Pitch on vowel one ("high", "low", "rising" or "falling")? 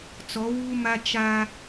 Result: rising